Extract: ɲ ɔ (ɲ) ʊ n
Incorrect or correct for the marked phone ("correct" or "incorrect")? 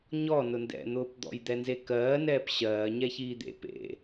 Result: incorrect